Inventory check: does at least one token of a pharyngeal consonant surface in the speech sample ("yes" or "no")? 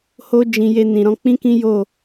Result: no